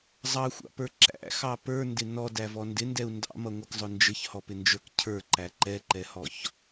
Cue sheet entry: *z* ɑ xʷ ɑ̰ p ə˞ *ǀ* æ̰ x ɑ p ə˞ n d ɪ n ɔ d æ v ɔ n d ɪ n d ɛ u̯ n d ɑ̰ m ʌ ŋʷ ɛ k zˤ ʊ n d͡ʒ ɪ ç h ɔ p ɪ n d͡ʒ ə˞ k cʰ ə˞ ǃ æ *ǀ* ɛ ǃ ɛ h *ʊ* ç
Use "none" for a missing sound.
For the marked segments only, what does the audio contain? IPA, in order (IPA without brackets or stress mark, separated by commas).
zˤ, ǁ, ǃ, ɔ